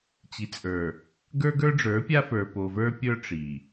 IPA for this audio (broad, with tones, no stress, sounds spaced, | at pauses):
t͡ɕ i˨ t͡sʼ ə˞˨ | ɡ ə˞˦ ɡ ə˞˦ ɖ͡ʐ ə˞˨˦ pʲ a˦ f ə˞˨ p o˨ v ə˞˦ pʲ ə˞˦ ʈ͡ʂ i˨